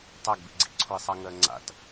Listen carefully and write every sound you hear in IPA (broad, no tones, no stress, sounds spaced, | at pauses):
tˤ a ɡ b ḭ ɡ͡ǀ ḭ ǀʰ o ɪ̯ sˤ a ŋ ɜ ŋ͡ǀ a̰ t